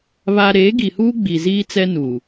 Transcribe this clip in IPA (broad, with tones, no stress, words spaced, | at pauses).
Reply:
βa˦ ɾeː˨˦ɡi˨huː˦ ɡ͡bi˨ziː˦t͡sɛ˦nuː˨